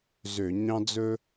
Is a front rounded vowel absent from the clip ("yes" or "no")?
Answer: no